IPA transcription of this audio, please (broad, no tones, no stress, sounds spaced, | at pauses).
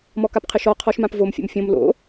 m ɔ k a p qʰ ɘ ʃ ɔ qʰ ɔ ʃ m ã p v o m fʲ o̰ m fʲ õ m l o̰